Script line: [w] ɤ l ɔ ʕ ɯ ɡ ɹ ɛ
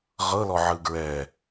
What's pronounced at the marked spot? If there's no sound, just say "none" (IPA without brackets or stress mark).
ʁ